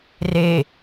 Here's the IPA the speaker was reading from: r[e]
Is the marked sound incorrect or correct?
correct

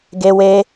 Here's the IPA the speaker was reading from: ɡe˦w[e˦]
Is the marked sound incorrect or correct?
correct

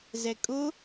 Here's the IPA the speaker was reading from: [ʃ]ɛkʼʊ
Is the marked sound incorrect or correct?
incorrect: z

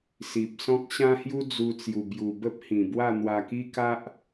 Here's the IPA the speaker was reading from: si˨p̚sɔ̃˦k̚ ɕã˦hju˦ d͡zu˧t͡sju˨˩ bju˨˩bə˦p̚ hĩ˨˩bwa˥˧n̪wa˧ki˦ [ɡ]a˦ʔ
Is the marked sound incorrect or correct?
incorrect: k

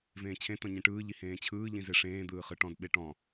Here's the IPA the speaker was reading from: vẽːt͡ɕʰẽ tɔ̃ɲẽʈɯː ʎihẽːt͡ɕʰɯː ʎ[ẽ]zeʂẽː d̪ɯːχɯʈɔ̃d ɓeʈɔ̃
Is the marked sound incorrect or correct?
incorrect: ĩ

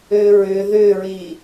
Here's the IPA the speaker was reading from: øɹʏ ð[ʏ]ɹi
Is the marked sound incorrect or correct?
correct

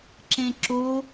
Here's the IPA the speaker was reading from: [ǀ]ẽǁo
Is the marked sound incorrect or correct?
incorrect: ǁ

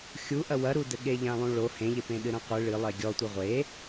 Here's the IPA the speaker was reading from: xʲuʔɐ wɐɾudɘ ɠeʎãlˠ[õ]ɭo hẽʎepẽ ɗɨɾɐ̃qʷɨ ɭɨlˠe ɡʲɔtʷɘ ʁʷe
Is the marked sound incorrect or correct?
incorrect: ũ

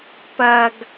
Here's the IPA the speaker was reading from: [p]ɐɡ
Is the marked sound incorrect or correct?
correct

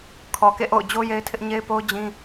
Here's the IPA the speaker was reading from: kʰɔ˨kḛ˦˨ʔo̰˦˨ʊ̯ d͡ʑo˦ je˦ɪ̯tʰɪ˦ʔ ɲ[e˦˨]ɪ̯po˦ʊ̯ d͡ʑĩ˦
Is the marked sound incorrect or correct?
incorrect: e˦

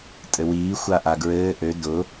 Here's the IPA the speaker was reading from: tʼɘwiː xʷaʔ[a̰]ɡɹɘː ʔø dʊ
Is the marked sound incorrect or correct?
incorrect: a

